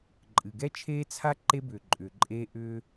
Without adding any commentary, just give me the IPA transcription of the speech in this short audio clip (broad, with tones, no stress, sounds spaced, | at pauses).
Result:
ǃʼ ɨ˨ ɡ ɛ˦ t͡ʃʰ eː˦ t͡sʰ a˦ ǃ e˦ b ʏː˨ ǃʼ ʏː˨ ǃʼ eː˦ ʔ ʏː˦